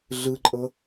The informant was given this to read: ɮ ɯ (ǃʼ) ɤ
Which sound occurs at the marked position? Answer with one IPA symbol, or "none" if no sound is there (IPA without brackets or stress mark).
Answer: ǃʼ